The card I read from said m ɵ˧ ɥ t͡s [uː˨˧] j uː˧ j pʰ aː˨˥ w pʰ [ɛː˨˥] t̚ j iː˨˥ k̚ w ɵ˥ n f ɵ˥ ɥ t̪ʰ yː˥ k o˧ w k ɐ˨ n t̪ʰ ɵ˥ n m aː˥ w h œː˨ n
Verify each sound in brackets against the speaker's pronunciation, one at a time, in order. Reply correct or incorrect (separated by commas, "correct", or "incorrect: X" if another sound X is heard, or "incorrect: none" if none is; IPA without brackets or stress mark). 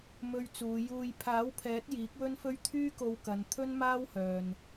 correct, correct